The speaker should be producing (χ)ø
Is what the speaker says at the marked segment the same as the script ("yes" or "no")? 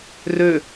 no